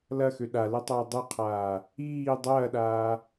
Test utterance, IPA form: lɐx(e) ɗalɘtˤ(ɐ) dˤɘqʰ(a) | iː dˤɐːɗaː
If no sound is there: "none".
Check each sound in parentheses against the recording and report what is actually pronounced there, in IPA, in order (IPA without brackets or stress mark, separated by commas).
ø, ɐː, aː